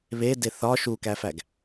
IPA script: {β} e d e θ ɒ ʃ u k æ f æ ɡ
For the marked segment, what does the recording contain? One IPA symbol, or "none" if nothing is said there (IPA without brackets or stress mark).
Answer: β